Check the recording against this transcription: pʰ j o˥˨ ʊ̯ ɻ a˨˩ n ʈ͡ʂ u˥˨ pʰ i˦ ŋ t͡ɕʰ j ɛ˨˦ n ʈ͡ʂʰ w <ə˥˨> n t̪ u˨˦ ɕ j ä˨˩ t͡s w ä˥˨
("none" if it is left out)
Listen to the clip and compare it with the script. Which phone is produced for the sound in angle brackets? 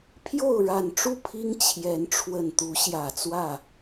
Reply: ə˨˩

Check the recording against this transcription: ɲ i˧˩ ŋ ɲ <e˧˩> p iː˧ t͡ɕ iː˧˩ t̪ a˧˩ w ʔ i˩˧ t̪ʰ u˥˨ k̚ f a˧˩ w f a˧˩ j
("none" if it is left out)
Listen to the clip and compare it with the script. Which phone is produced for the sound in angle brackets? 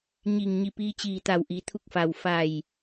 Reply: i˧˩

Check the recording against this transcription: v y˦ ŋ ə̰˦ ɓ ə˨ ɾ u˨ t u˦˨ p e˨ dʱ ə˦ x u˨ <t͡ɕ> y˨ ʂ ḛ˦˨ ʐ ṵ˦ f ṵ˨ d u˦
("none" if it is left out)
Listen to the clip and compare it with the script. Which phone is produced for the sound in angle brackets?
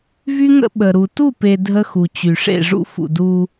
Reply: t͡ɕ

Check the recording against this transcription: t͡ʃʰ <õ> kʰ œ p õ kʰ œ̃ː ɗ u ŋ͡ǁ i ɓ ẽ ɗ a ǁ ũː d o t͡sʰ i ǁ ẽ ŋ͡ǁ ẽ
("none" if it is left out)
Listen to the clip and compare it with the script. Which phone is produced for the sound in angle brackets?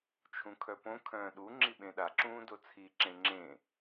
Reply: ũ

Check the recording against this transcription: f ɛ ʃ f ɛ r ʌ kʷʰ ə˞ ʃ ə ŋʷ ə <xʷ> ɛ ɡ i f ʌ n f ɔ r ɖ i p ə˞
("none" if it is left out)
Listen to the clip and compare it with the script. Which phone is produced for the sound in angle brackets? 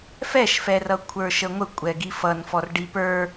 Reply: kʷʼ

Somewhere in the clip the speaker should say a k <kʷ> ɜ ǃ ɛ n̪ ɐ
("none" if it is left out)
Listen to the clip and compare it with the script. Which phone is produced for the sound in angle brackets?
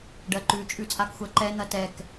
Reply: xʷ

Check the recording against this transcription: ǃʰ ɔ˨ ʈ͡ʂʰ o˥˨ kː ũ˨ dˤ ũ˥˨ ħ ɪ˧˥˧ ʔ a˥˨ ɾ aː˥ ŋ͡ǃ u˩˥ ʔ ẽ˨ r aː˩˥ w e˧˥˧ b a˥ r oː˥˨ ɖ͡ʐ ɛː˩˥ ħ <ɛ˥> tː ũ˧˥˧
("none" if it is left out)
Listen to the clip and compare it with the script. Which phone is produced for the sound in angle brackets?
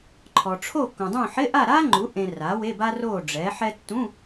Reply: ɛ˥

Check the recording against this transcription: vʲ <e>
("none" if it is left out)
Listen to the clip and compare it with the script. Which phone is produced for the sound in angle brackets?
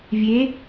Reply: e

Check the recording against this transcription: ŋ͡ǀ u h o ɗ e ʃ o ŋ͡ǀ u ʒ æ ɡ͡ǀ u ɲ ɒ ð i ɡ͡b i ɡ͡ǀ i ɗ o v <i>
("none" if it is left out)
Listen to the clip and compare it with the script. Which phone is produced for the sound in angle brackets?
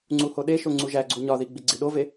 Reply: e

